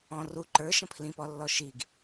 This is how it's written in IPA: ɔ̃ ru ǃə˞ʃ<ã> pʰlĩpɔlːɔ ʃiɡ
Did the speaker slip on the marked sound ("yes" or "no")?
yes